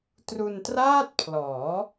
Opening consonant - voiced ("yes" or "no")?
no